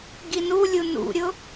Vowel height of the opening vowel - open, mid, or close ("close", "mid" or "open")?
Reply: close